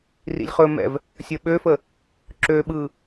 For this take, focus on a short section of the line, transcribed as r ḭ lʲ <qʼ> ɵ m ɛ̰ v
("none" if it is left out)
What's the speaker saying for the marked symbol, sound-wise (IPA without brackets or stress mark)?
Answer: χ